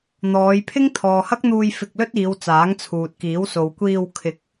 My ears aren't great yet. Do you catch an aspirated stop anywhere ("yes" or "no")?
yes